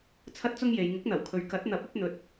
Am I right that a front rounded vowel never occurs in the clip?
yes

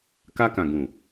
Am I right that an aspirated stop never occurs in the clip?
yes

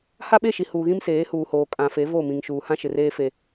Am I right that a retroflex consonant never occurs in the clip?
yes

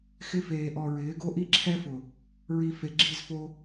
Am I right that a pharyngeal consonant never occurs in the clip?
yes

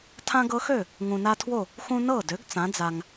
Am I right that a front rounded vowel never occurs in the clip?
no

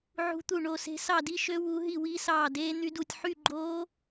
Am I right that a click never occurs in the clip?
no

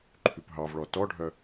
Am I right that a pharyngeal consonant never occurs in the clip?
yes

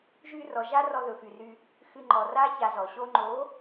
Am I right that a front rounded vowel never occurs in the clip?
no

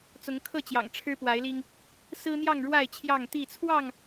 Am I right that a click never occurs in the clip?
yes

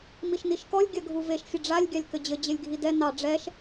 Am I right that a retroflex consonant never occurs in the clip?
no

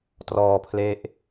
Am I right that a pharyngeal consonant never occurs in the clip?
yes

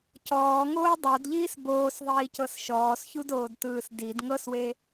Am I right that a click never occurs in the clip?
yes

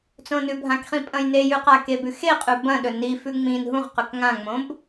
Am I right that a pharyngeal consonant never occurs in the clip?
yes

